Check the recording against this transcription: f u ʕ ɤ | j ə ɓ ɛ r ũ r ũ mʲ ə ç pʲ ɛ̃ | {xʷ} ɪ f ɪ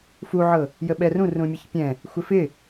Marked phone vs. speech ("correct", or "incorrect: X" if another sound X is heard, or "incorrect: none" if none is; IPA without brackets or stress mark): correct